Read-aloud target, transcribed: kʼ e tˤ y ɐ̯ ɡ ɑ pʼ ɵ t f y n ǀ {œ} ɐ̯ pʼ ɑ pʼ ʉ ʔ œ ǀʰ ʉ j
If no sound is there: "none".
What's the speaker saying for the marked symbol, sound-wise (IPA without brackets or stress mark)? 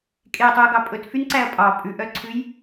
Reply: æ